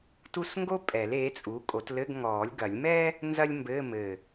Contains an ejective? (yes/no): yes